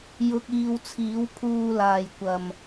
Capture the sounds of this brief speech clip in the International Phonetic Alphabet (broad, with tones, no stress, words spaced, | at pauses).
jʊ˨k̚iː˨w t͡sʰiː˨˥wpʰuː˧laː˨jkʷɐ˨m